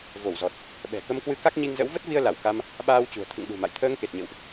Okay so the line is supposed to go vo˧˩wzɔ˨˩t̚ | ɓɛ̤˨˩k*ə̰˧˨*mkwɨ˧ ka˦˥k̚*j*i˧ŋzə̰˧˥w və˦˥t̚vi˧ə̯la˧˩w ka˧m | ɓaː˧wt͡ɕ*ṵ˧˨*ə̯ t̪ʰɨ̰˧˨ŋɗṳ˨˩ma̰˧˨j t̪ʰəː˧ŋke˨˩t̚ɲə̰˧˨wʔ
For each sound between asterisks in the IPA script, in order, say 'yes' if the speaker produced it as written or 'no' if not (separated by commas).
no, no, no